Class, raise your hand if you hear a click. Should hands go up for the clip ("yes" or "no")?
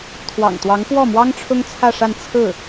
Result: no